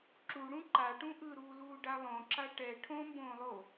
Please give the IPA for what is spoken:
ǁuɽũ ǃaʈũ ʔɯɾuːluːɖa lˠõǁa ʈɛ ʈʰõmbõːlˠo

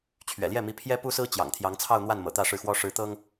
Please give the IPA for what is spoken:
t͡ɕʰɥɛ̰˨˩ljɛ˥˩mi˧˥ pʰjɛ˥pu˥sɹ̩˥ t͡ɕjɑ̰˨˩ŋt̪ʰjɑ˧˥ŋt͡sʰɑ˥˧ʊ̯ n̪wa˥˩nmɤ̰˨˩ t̪ä˥˧ʂɻ̩˥˩xwɔ˥ ʂɻ̩˧˥t̪ɤ˥ŋ

